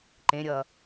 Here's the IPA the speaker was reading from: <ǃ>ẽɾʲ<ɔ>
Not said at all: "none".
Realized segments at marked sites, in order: ǃ, ʌ

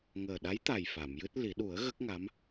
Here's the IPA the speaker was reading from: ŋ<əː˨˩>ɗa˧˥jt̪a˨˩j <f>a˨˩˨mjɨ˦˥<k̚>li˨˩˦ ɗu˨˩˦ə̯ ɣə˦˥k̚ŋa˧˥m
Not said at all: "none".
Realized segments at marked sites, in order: əː˨˩, f, t̚

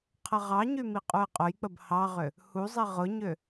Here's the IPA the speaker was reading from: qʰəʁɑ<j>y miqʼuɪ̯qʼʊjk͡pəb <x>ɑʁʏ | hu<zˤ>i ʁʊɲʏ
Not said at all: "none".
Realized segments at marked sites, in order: ɲ, h, zˤ

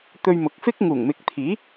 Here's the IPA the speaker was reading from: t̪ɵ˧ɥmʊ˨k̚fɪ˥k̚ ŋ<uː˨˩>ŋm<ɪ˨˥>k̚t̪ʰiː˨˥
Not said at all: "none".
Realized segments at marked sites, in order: uː˨˩, ɪ˨˥

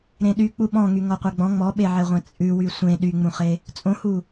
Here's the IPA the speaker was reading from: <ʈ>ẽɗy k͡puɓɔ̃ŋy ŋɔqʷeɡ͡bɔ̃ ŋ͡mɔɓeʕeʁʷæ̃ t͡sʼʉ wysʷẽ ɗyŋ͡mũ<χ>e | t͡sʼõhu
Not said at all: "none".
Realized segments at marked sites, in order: ɾ, χ

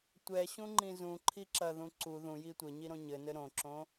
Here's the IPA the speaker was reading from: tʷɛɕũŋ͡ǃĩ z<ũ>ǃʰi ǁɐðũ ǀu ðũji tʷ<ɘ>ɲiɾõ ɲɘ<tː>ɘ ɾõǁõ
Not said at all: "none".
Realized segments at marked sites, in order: ũ, ɘ, n

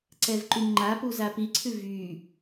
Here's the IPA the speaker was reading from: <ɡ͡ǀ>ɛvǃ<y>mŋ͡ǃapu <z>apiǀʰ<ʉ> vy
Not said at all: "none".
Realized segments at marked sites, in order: ǀ, y, z, ʉ

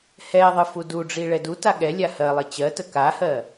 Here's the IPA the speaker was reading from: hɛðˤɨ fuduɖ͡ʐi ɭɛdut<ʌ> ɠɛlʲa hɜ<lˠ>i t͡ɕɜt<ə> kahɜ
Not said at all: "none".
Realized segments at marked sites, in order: a, lˠ, ə

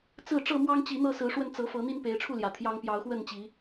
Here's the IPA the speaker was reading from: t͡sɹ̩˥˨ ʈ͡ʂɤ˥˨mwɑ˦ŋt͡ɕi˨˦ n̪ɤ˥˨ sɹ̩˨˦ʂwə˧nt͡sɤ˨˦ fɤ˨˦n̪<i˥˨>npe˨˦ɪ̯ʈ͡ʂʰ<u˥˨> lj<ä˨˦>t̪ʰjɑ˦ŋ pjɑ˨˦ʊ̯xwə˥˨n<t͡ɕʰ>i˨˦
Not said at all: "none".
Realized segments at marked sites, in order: i˦, u˥˨, ä˨˩, t͡ɕ

